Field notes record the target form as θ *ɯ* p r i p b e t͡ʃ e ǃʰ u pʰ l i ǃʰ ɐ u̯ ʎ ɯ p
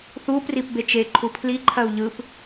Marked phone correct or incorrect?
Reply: incorrect